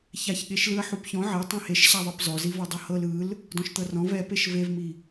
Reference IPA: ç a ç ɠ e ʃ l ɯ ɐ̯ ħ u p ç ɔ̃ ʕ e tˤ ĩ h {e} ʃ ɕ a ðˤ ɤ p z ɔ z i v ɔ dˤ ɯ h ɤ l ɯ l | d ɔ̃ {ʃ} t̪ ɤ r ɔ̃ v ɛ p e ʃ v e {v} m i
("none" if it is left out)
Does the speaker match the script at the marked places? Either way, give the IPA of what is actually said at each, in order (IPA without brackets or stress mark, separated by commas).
e, ʃ, v